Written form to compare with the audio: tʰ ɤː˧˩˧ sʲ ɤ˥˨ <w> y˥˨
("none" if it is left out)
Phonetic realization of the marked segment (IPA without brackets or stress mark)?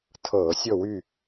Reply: w